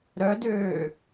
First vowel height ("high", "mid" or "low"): mid